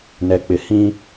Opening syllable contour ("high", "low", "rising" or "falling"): low